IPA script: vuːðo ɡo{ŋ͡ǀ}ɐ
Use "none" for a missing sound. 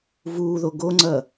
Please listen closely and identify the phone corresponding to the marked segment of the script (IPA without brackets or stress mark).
ŋ͡ǀ